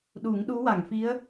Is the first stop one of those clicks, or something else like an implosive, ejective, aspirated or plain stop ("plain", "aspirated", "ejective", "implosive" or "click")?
implosive